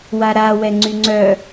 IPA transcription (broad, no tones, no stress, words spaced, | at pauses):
waɾa wɛŋ͡ǀyŋ͡ǀœ